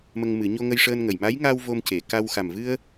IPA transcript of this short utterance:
m ə˧ ŋ m ɨ˨˩˦ ɲ o˧ ŋ ə˧ j ʂ əː˧ n ŋ ə˨˩ j m a˧˥ j ŋ a˧ w v o˧ m c e˨˩˨ k a˧ w x a˨˩ m v ɨ˧ ə̯

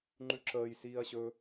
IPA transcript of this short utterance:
ŋ͡ǃ ʉ ǁ əː j s iː ɐ̯ ɕ ɵ

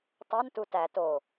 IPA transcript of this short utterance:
tˤ o n t u t æ t o

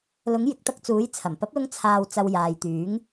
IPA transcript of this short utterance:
l ʊ˨˥ ŋ j ɪ˨˥ k̚ t̪ ɐ˧ k̚ t͡s uː˨˥ j t͡sʰ ɐ˨˩ m p ɐ˨˥ p̚ l ʊ˧ ŋ t͡sʰ aː˨ w t͡s ɐ˨ w j aː˨ j t̪ yː˨˥ ŋ

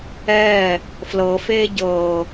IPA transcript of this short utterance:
ɛː | f l ɤ f eː ɟ ɤː

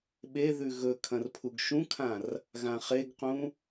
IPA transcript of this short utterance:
ɓ e ð ʉ ɣ ɵ kʰ ɐ̃ r pʰ u ɡ ʃ ũ kʰ ã r | ɣ ã χ e ɡ q ũ

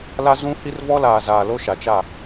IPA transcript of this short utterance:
l a˦ z ũ˦ h i˦ r v ɔ˦ l aː˨ z aː˨ l o˦ ʃ a˨ t͡ʃ a˦˨

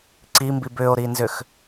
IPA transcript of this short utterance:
ǀ i m b i b ʏ o̯ ɾ i n z ʏ x

